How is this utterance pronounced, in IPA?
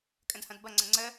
kʼ ə̃ d h ɐ̃ d b ɐ ŋ͡ǀ ə̃ ŋ͡ǀ ə

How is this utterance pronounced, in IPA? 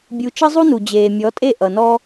bʲ u˨ t͡ʃ ʌ˦ zˤ u˦ n u˨ d͡ʑ eː˨ mʲ ɔ˨˦ tʼ e˦˨ ʔ ʌ˨ n ɔː˦

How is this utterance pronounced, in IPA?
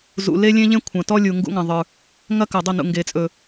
z ṵ˨ l e˦ lʲ ẽ˦ ʎ ẽ˦ kʷʰ ɐ̃˨ t ɔ˦ lʲ u˨ ŋ ɡ ṵ˦ ŋ ɐ̃˨ ðˤ ə˞˨ | ŋ ɐ˦ k ɐ˨ dˤ ɵ˦˨ n ṵ˨ ŋ ɡ e˨ t͡sʼ ɵ˨

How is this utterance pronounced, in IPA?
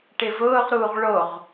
ʈ ɪ v ʊː ʁ ɾ uː ʁ ɭ o ʁ

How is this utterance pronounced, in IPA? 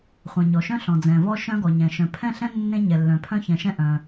χʷ ɛ̃˩ ɲ ɔ˩ ʃ œ̃˥ ɬ ɔ̃˩ d͡z ɛ̃˩ v ɔ˥ ʃ œ̃˥ ɡ ɔ˩ ɲ ɛ̃˩ ʃ œ̃˩ pʰ ɛ̃˥ ɬ ɛ̃˥ nː ẽ˥ ɲ ɛ˩ lː œ̃˩ pʰ œ̃˥ ç ɛ̃˩ ʃ ɛ̃˥ ʔ œ̃˩

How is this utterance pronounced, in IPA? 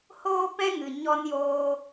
h oː˦ p ɛ̃˦ ŋ ɨ˨ ɲ ɔ˧ n j oː˧

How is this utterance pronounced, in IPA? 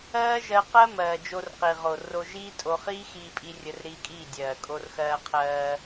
ɜː˦ ʒ ɜ˧ q ɜ˦ m ɜː˨ d͡ʒ o˧ r q i˨ ʁ o˨ r o˧ ʒ iː˦ tʼ o˧ χ iː˦ x iː˧ pʼ i˧ rʲ ə˧ r ɾ iː˧ kʼ iː˦˨ dʲ ɜː˨ kʼ o˧ r x ɜː˧ qʰ ɜː˧

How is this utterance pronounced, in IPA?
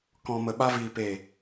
k ɔ̃˨ m ə˨ ɓ a˧ v iː˨ p e˨

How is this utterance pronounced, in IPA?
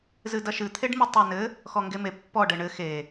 z ɨ d ɐ ʃ ɨ t̪ʰ e ɖ m i tˤ ɐ ɪ̯ n ɘ | x ɔ ŋ ɡ e m e pː ɔ ɖ ɘ ɳ ɘ x e

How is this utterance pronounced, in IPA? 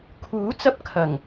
kʰ uː˨˥ t͡s ɐ˧ p̚ kʰ ɐ˨˩ ŋ

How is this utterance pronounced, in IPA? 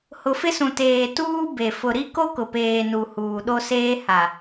h ʊ˨ f ɪ˦ s ũ˨ t eː˨ t uː˦ b e˨ f ʊ˨ ɾ i˦ k o˦ k ʊ˨ p eː˨ n u˨ h uː˨ ɗ o˦ s eː˦ h a˨

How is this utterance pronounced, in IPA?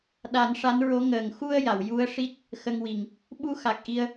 ɗ a˨˩˦ n ʂ a˧˥ n ɹ o˧˥ ŋ əː˨˩ ŋ x u˧ ə̯ j a˨˩˨ w j u˧˥ ə̯ ʂ i˦˥ t̚ | x ə˧ ŋ w i˨˩ ŋ | ɓ u˧ x a˨˩ k̚ ʔ i˧ ə̯

